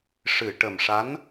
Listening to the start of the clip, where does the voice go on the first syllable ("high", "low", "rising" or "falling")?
low